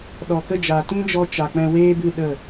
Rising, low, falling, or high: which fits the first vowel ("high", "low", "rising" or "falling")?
low